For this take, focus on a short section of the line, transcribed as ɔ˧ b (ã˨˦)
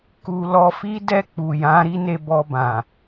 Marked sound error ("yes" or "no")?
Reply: yes